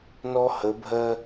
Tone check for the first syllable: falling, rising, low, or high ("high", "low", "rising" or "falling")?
high